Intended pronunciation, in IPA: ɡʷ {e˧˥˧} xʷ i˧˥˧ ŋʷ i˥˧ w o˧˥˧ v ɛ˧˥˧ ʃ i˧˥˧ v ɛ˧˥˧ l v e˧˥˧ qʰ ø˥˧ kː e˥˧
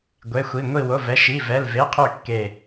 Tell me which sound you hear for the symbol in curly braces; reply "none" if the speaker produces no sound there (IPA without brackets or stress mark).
e˧˥˧